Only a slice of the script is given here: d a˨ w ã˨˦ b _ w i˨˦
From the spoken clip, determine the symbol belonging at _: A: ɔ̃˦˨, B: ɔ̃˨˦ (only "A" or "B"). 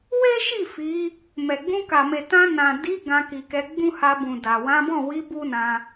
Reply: A